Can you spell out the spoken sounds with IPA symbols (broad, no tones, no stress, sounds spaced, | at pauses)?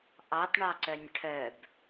ʔ ɑ t ɳ ɑ ǀ œ nʲ ʈʰ œ b